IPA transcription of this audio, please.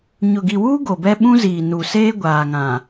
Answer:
ɲʊ˨ɡi˨wuː˦ ɡo˨bɛ˦ ɓũ˦ziː˨nu˨seː˦ ɡʷaː˨ŋã˨

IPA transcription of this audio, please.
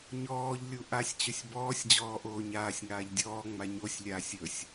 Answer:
ɲɔːʎlʲu ʔasʲt͡ɕɵsʲ bɔːsʲd͡ʑɔːʔoː ɲaːsʲŋaːʎ dʲɔːŋ͡ma ɲosʲlʲaːsʲ ɵsʲ

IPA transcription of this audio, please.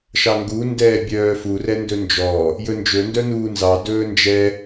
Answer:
ʃɑŋɡu ndɛːbʲœːfu rɛndɵnd͡ʒɔ | jɵnd͡ʒɵ ndœnuːnzɑ dɵːnd͡ʒɛ

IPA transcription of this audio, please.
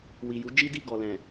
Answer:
wi˨ju˨˦d͡ʒi˦di˦˨ ɡɔ˨lɛ̃˨

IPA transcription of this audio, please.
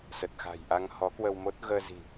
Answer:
sə˨˩t̚xa̤˨˩jʔa˧ŋ hɔ˨˦kwə˧wmo˦˥t̚ ɣəː˧zi̤˨˩

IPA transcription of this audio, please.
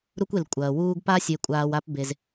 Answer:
ɾu˦kʷ e˨l kʷʼɐː˩wuː˦ɡpa˥ sʲe˨kʷʼaː˨w a˦pbe˨z

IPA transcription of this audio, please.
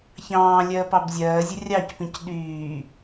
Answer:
çɑ̃ː lʲɜːpɑbzʲɜːzʲə rʲɑcpĩc ɗyː

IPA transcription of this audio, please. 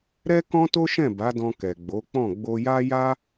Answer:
ɾɛ˦kɔ̃˦ to˦ʃɛ̃˦˨ ba˨˦dɔ̃˧ kɛ˨ɡ͡bo˨˦k͡pɔ̃˦˨ ɡ͡bo˧ja˦ja˦

